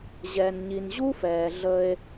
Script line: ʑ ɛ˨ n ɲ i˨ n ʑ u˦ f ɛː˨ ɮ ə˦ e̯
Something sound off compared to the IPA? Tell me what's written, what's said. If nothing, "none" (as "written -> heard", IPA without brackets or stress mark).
none